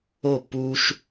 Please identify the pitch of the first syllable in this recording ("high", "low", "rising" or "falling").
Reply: falling